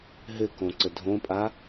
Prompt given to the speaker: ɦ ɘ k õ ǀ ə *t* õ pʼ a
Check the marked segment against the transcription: incorrect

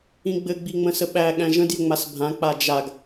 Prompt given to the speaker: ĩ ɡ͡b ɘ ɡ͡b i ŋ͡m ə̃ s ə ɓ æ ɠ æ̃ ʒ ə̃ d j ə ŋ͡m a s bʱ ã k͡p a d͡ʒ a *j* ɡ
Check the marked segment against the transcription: incorrect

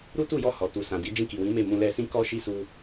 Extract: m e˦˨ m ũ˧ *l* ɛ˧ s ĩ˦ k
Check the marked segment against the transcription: correct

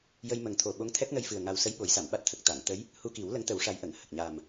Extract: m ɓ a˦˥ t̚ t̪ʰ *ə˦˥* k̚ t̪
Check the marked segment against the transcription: incorrect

